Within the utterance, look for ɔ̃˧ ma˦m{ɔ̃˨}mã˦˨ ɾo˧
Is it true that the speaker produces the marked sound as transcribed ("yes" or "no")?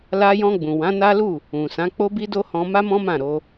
no